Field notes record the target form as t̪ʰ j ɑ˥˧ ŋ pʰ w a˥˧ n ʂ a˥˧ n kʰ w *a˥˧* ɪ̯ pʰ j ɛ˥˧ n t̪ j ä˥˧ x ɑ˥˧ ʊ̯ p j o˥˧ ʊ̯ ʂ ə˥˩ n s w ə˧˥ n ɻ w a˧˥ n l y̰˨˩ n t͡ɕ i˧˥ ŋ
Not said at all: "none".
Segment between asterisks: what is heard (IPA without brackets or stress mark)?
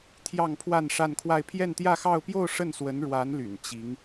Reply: a˥˧